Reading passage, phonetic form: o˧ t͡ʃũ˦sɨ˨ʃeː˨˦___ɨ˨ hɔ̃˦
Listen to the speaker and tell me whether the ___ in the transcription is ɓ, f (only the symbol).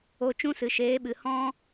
ɓ